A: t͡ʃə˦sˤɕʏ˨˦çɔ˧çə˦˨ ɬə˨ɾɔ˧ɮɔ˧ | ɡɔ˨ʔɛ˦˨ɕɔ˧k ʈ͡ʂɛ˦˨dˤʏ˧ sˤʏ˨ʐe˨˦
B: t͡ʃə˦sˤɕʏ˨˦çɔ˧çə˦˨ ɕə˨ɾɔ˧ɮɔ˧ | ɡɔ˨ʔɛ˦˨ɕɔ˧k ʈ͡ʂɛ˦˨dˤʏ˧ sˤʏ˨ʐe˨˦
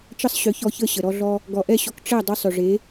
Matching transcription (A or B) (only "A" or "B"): B